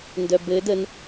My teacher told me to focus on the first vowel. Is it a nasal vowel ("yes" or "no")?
no